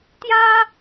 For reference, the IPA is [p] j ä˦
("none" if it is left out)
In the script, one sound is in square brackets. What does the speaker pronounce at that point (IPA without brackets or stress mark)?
t̪